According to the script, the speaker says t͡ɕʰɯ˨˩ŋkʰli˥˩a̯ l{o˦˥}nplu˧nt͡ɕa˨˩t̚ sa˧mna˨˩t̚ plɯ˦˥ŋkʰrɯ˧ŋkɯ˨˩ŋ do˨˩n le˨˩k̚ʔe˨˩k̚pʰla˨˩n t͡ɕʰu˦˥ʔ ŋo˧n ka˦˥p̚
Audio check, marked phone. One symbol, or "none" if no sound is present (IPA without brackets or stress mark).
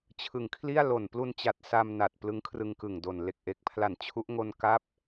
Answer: o˨˩